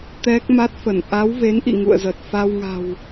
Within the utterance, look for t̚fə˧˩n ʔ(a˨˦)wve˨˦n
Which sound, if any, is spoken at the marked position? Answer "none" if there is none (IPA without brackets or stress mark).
a˨˦